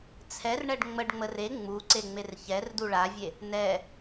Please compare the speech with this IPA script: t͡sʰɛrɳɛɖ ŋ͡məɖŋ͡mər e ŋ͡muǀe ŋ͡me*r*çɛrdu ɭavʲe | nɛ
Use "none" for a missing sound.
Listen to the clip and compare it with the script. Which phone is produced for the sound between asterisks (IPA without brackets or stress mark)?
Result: r